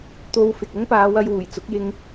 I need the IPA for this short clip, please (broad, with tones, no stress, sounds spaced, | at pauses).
t̪ o˧ w f ɪ˨ k̚ ʊ˥ ŋ p aː˨˧ w ɐ˧ j w uː˨˩ j t͡s ʊ˨˥ k̚ j ɪ˧ ŋ